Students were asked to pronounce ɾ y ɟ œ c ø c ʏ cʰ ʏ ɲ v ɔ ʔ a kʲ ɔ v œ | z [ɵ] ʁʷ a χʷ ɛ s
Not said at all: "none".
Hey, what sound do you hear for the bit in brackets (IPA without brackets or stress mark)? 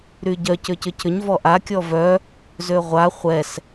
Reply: ø